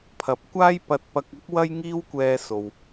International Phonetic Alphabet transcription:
pʰɐ˨p̚ kʷaː˥j pɐ˧t̚pɐ˧k̚ɐ˥k̚ wɐ˥jŋiː˥wkʷɛː˧ so˨w

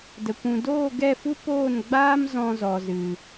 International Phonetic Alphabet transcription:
də˨kʷũ˨ doː˦˨ɡɛ˦˨fu˦ poː˦˨nɡ͡baː˦m zɔ̃˧zɔ˨zɨ˨

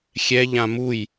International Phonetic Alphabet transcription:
xʲɛ ʎãmuj

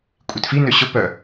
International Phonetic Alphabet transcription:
kʷʼitfi nøɕʊ pœ

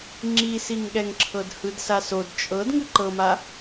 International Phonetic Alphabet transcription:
ŋ͡ǁisiŋɠɛŋǁʰɤd hɯdsasod t͡ʃʼɤd ŋɯǃɤma

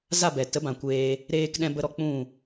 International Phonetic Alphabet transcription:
za˦˨bɛ˨ tə˨˦bã˨kʷeː˧ | ɾeː˧kɗɛ̃˧bə˧ɾɔ˧ k͡pũ˦˨

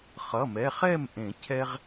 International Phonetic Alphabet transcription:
χʌ˩˧˩mɛ˩˧˩χɛ˥˨mʔẽ˨˩˦ cʰɛ˥ʁ

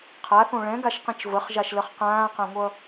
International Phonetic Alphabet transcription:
qʰaθõ ɭɛ̃ɡaʃqĩt͡ʃ vəχʒaʃləχ qãːqãŋʷʌ

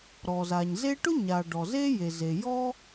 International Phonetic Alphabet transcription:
ɾɔ˩za˩ɲze˥ ʈʊ˥ɲa˩ ɖɔ˩ze˥ je˩ze˩ jɔ˥

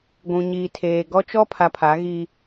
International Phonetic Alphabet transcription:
ɡʷũ˨ɲiː˨tʰeː˨ ɡɔ˦ t͡ʃɔ˦pʰa˨ pʰa˨˦ɣi˦

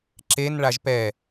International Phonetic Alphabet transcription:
ǁenɭaʒ pɛ

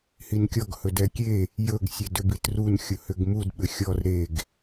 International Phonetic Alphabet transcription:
hinkʲɔɡ hɵdɛkʲe | jɵɡ sʲɛdʏbitrun xʲʊhʏɡmud ɓʏxʲɔr ɾeɡ

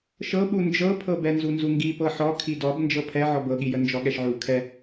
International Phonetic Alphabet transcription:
ʃɤɓu nd͡ʒɤpʰɤbɛ nzunzuŋɡi pɤħɔ kʰidɔb nd͡ʒɤpʰɛ ʕɔbɤɠijə nd͡ʒɔɠɛʃʕu kʰɛ

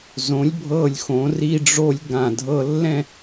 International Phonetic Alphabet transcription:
zõ˩˧lʲ bʱɤ˧˩lʲxõ˩˧ ri˧ɖ͡ʐo˧lʲ ɡã˧˩ dʱɤ˧lːɛ̃˥˧

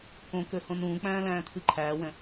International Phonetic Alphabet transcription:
kõkø hõnũːk͡pæ̃ː læ̃ːt̪ʰɨǃʰæːwɛ̃

